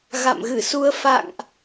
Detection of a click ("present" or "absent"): absent